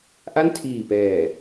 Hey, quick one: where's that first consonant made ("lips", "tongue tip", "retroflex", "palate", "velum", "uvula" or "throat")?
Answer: throat